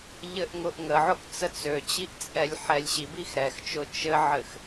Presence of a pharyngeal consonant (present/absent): present